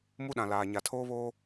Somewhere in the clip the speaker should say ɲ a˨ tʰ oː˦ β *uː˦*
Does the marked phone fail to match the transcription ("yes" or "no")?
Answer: yes